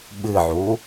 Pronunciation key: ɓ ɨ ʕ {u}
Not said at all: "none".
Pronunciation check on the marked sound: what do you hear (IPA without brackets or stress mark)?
u